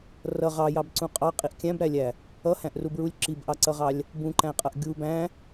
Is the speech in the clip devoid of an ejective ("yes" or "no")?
no